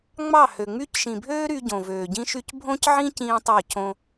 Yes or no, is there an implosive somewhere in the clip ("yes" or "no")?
no